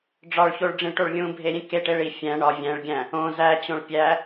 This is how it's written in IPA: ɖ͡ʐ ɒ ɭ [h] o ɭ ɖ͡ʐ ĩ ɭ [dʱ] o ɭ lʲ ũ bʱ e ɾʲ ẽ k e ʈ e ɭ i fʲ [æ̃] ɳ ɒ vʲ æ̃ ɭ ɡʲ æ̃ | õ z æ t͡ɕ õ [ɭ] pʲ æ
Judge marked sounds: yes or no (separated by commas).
no, no, yes, yes